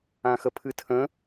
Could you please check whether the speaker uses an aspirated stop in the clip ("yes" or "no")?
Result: yes